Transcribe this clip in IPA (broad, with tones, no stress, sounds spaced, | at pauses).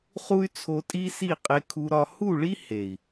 χ u˦ y̯ t͡sʰ o˧ tʼ i˦ s i˦˨ qʼ e˧ kʰ u˧ ɾ ɒ˧ h u˦˨ ɭ i˦ h e˨ i̯